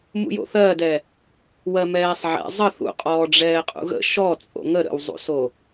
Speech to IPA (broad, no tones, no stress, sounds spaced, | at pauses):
m ṵ j o̰ θ ɜ d ɛ | w ɜ m ɛː sˤ ʕ ɛ̰ zˤ ə θ ṵ qʼ ɔː ɖ͡ʐ ɛː qʼ ṵ ɣ ə̰ ʃ ɔ t͡sʼ o̰ ŋ ə ɾ ə̰ w zˤ ṵ s o